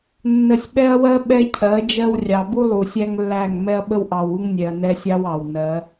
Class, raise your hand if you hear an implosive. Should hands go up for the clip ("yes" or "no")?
yes